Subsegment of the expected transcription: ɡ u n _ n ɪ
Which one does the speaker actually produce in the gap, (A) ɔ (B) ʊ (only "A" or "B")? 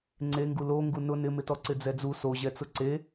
B